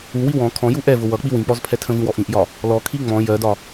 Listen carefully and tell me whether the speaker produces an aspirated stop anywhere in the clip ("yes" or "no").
yes